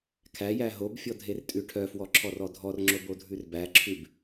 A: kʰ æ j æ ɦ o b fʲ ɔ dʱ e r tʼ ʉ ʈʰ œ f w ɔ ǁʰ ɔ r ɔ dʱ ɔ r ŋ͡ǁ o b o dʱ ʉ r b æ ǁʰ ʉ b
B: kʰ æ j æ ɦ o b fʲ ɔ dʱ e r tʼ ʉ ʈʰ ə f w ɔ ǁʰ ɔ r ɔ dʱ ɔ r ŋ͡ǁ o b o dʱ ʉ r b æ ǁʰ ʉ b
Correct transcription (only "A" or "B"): A